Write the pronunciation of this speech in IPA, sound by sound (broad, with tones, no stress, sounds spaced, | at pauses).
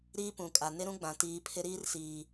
ɾ iː˦ p ũ˨ kʼ a˨ n ɪ˦ ɾ ũ˦ ɡ͡b ã˨ t iː˨˦ pʰ ɪ˦ ɾ iː˦ r s iː˨